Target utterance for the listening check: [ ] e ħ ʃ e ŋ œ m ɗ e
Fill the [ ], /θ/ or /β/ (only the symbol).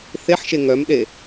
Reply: θ